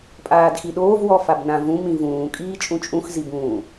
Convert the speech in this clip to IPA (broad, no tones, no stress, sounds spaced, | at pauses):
pʼ aː d x i ɗ oː v w ɔ f a b n ã v ũ m ĩ v ũː kʼ iː t͡ʃʼ ũ t͡ʃʼ ũ x z i b ũː